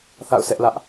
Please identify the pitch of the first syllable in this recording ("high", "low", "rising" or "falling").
falling